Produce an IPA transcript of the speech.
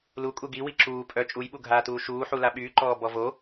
l u kʼ u ɡ i w i ǁ uː pʼ œ t͡ʃʼ u j ɓ u ɡʱ aː t uː ʃ uː ħ u l a ɓ yː ǃ ɔː b ɔ v o

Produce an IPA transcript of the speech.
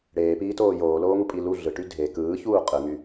ɽ eː p iː t oː j oː l oː ŋ u pʼ i l u ɮ ɯ ʈ y dʱ e k ɯː ç uː qʼ ɯ ŋ y

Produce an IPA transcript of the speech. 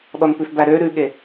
ɗ ɔ n p ʉ f b æ ɾ ø ɾ ʉ ɠ e

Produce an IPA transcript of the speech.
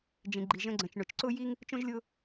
d͡ʒ ĩ˨ ɡ͡ǃ i˨ ʒ ə̃˧ ɡ͡ǀ ə̃˨ t͡ʃ ɳ ʊ˨ t͡ʃ ǀ ʊ˦ j i˦ ŋ | t͡ʃ õ˦ ʒ lʲ ʊ˦

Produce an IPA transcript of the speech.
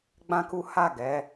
ɡ͡b ã˦ k u˦ h a˦˨ ɡ ɛ˨˦

